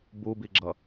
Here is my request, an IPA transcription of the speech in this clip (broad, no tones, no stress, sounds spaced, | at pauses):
b u b i ɡ͡ǁ ʌ